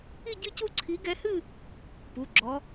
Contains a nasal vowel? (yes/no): no